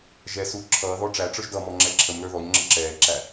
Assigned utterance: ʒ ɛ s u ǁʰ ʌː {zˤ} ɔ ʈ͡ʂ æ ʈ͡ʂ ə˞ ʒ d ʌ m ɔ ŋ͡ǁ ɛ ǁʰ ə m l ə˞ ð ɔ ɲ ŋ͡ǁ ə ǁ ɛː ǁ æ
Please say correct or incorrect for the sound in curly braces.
incorrect